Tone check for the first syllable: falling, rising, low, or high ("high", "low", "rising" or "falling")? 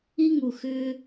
high